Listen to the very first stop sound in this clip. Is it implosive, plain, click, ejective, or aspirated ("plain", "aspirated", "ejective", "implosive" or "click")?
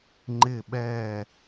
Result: click